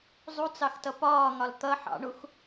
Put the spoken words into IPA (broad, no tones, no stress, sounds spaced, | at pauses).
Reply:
zˤ u t͡s ɑ x t ʌ p ɒː ŋ ɒ l t̪ ʌ ħ ɑ̰ ɳ u x